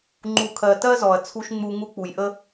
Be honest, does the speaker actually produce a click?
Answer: yes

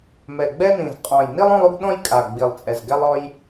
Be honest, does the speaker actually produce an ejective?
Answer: yes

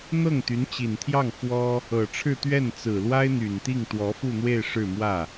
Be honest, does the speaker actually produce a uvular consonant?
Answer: no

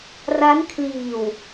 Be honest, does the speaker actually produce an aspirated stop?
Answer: yes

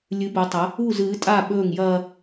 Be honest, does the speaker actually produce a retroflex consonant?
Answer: no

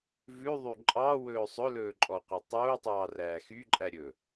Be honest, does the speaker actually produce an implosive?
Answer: no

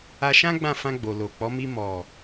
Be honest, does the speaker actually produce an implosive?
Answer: no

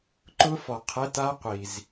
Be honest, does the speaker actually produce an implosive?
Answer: no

